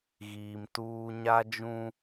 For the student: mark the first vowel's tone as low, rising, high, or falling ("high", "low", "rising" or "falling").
low